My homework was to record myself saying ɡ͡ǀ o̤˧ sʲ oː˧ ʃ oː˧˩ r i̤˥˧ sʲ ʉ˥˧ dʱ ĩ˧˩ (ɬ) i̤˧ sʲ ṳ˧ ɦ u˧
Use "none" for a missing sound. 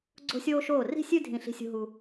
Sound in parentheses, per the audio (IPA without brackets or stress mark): ɬ